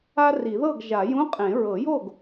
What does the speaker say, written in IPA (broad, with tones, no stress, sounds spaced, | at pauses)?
a˥ r i˨˩˦ ð ɤ˥˨ ɡ ʒ a˨˩˦ j ũ˧˥˧ qʼ ẽ˨˩˦ ɹ ɤ˨˩˦ j o˥˨ ɡ